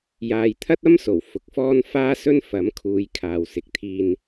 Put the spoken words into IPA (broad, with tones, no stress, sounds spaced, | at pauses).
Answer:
j aː˨ j t̪ʰ ɐ˥ t̚ ɐ˥ m s o˨˩ w f ʊ˨ k̚ f ɔː˥ n f aː˥ s ɵ˥ n f ɐ˨˥ m kʰ uː˨˧ j kʰ aː˨ w s ɪ˨ k̚ t̪ʰ iː˧ n